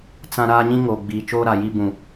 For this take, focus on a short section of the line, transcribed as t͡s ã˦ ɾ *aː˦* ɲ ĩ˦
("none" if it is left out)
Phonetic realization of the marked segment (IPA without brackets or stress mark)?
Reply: aː˦